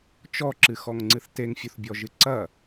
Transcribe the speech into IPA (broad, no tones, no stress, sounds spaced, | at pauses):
t͡ʃ ɔ ǁ ɨ x ɔ ŋ ŋ͡ǀ ɨ θ t e ŋ fʲ u θ bʲ ɔ ʒ ɨ ǀ ɐ